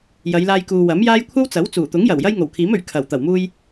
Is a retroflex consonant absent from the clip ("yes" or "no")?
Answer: yes